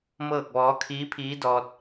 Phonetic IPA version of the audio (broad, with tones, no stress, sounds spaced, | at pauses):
m ɤː˥˨ k̚ ʋ ɔː˧˥ kʰ iː˧˥ pʰ iː˧˥ d ɔː˧ t̚